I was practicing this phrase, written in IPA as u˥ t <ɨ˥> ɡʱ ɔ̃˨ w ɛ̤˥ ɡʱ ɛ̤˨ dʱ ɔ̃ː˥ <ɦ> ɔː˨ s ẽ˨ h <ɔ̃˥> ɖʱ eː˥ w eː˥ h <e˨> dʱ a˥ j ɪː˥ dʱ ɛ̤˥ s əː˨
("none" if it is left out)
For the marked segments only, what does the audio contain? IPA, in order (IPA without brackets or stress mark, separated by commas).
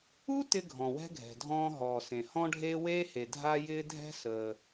ɪ˥, ɦ, ɔ̃˥, e˨